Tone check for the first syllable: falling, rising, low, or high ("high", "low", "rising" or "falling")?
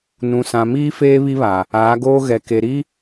low